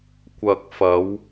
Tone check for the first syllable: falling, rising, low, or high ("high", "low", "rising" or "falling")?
low